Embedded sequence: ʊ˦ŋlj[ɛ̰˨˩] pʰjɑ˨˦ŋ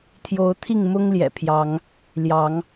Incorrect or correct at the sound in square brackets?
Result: correct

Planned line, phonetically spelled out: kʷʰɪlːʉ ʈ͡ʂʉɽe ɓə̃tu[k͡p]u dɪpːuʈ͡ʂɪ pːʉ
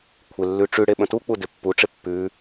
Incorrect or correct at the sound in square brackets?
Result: correct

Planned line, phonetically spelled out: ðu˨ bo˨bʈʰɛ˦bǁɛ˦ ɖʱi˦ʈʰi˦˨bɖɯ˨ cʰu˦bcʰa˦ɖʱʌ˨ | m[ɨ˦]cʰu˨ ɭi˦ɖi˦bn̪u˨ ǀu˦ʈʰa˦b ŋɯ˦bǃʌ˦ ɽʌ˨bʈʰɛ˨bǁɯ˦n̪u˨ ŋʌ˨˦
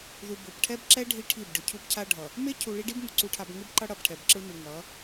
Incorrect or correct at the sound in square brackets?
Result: incorrect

